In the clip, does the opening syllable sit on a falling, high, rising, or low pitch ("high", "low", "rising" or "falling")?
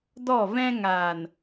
falling